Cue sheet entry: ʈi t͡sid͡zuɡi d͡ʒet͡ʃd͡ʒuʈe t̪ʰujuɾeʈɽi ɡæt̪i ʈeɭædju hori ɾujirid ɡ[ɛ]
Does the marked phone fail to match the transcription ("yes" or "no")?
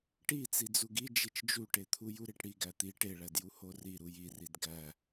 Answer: yes